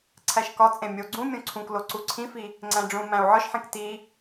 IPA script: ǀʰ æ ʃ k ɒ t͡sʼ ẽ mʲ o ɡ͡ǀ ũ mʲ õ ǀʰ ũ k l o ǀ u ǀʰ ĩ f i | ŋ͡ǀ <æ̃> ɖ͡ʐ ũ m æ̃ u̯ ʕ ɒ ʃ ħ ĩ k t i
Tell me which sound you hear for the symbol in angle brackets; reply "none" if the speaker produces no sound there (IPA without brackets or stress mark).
æ̃